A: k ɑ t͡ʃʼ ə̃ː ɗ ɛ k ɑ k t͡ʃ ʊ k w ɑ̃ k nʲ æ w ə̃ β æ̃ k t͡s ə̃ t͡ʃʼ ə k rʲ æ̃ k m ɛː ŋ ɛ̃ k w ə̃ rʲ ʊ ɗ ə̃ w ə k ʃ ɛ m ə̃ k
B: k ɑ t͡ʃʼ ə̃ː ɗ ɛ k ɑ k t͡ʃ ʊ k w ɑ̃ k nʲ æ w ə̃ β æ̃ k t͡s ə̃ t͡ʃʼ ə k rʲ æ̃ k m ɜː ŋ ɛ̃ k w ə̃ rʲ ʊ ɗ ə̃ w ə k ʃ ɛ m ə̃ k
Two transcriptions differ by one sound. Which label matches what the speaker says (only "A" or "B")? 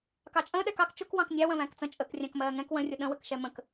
B